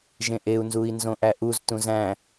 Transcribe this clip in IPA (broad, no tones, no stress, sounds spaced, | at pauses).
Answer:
ʒ ẽ ʔ e u̯ n z u i̯ n z õ ʔ æ ʔ u z t ũ z æ̃